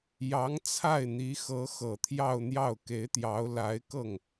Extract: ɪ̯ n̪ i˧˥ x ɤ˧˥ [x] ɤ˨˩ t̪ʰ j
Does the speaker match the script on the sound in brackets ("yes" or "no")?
yes